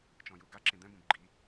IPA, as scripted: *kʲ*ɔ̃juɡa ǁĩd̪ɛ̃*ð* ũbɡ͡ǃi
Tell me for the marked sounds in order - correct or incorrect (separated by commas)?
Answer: incorrect, incorrect